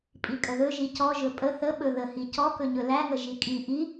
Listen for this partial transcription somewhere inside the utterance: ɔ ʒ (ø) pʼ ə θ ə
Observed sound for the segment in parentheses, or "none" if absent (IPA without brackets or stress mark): ɵ